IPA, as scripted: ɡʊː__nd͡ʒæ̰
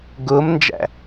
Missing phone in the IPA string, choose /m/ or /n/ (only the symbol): m